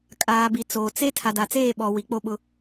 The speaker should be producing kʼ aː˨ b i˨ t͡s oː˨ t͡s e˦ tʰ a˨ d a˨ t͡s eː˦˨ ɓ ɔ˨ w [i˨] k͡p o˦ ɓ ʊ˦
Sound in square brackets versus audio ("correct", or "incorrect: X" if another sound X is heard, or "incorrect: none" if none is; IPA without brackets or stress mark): correct